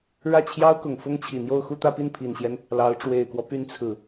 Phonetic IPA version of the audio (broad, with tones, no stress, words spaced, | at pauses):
ɻä˥˩t͡ɕʰjɑ˥ʊ̯kʊ˨˩ŋ fʊ˥ŋt͡ɕʰi˨˩n̪jo˥˧ʊ̯ xu˥˧t̪ä˥˧pi˥˩n pʰi˨˩nɕjɛ˦n | lɑ˧˥ʊ̯ ʈ͡ʂwe˨˩ɪ̯kwɔ˦py˧˥n t͡sʰɹ̩˨˩˦